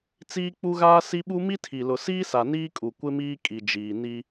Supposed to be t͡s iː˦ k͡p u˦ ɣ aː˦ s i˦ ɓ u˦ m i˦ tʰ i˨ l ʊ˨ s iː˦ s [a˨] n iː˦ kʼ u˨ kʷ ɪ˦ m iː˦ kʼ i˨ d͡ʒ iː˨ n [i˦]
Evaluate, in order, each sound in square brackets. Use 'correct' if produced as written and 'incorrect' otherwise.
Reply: correct, correct

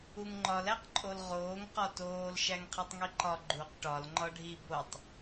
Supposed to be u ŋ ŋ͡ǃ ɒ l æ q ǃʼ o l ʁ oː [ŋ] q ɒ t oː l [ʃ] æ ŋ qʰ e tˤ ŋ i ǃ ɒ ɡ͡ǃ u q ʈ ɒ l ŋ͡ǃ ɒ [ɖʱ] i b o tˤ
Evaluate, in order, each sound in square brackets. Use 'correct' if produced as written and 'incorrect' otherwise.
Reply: correct, correct, correct

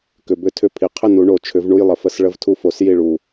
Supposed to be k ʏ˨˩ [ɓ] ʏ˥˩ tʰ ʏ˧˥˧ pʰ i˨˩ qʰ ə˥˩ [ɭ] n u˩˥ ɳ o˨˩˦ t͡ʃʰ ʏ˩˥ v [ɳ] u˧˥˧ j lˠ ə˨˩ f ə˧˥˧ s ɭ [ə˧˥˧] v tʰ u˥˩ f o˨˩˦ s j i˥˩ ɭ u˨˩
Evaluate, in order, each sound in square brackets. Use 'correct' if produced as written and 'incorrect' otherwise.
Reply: incorrect, incorrect, correct, correct

